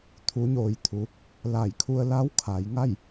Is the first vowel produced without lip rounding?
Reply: no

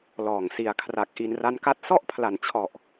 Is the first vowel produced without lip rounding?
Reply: no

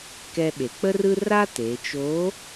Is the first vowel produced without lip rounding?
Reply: yes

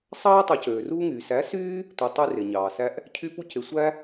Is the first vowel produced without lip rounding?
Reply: yes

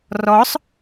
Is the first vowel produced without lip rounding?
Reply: no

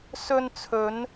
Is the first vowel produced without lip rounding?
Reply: no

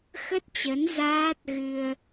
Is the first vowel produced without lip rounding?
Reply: yes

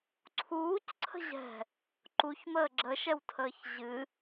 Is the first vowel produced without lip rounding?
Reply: no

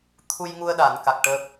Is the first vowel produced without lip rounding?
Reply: no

